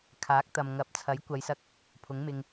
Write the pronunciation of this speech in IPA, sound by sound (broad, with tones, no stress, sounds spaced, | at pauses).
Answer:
kʰ aː˨˥ k̚ t̪ ɐ˨ m ŋ ɐ˨˥ p̚ t͡sʰ ɐ˨˥ j kʷ ɐ˨˧ j s ɐ˧ k̚ | pʰ ʊ˨˥ ŋ m ɪ˧ ŋ